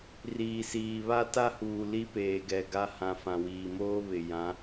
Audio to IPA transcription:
riː˨siː˨βa˦ ta˦huː˨ li˦peː˨ɡɛ˨ ɡa˦ hã˨fã˨wiː˨ moː˦βɪ˨ jã˨˦

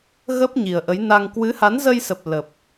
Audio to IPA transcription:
ɣə˦˥p̚ ɲi˨˩ə̯ʔə˨˦jna˧ŋ kwɨ˨˦ha˨˦n zə˧jsə˨˩p̚ lə˨˩p̚

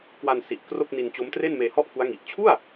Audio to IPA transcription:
kwa˧nsi˨˩ʔ kro˥˩k̚ni˧nt͡ɕo˦˥m tre˥˩nmeː˧hɔ˥˩ʔ fu˦˥a̯ŋi˨˩ʔ t͡ɕʰu˥˩a̯

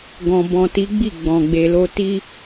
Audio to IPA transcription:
ɡɔ̃˨ bɔ̃˨ti˨˦ ɡ͡bi˦˨ ɡ͡bɔ̃˨ ɡ͡be˨lo˧ti˦

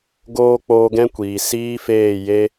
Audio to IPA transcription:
ɡoː˧ k͡poː˧ɡɛ̃˦ kʷiː˨ siː˦feː˦˨ je˦

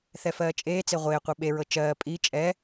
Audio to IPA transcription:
θɛfɜːt͡ʃʼeːt͡se ʁʷeːqʷɛ ɓeɹɤ t͡ʃɜː pʼi t͡ʃʼɛ

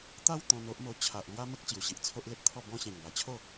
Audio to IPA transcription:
t̪a˦w t̪ɔ̃˧no˦ʔmo˧ t͡ɕʰa˨ʔlwa˦mə˦k̚ t͡ɕju˨˩ɕi˨ʔt͡sʰo˦ʔle˦p̚ t̪ʰɔ˥˧bɔ̃˦ ɕẽ˨˩ŋba˨˩t͡ɕʰo˥˧

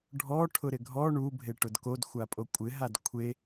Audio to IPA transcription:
ɖʱɔ ʈʰʊɾɪɡʱɔ ɳu bʱeʈʊdkod xʷapʼokʷʼɪ ɦadkʷʰe

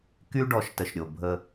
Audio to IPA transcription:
ky˦ɖɔ˨ʃ tə˨ʃɾʲo˨ bʱə˦

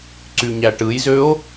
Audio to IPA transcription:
ǀyɲæʈɯjzøo̯

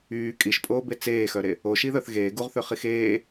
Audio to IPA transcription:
yː kʼiʃpʼoːbe t͡seːxœɾe | oʃiðœθ ɣeː ɡuʁθøχi xeː

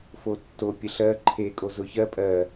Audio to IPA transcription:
fotːo pʲəɬɜ ǃʰe kʼozʊçɜ pʼɜ

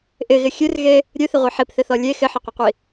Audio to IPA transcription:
ʔɪɣɪ xʲʉrɣe | ɾʲʉθɪʁʷi ħipθɪθɔ lʲe xɪħɪqʷɪqʷi

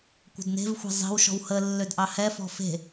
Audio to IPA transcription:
kʷə̤dne̤vxʷe̤ zˤi̤wʃɔ̤w həlːød ʔɑhɛfɔ̤ fe̤

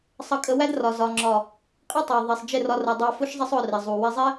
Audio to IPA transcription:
sˤʌ˧kʼə˧ wæ˦drɒ˨ zɒ˧ ŋ͡ǁɒ˨ | qʼi˦ tˤæ˨ðˤɛ˨sˤd͡ʒɪ˦˨rɒ˧ rə˨dˤɑ˧fʊ˦ʃzˤə˦sˤ ʊ˦˨rɪ˨zˤu˨ wɪ˧zˤɪ˦

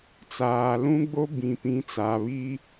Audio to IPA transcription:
t͡saː˨lũ˦ɡ͡bo˦ bĩ˨pĩ˨˦t͡sa˨ βi˦

